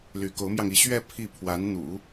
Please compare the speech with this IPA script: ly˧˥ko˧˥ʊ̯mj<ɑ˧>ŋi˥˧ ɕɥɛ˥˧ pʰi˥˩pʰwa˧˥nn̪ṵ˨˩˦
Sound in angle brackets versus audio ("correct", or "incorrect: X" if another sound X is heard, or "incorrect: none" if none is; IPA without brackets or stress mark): correct